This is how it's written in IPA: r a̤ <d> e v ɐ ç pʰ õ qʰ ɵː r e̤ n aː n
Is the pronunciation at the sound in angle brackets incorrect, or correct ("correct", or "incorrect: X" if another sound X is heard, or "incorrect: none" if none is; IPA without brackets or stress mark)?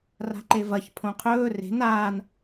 incorrect: ǃ